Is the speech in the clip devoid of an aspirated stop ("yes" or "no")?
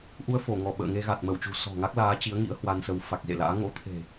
no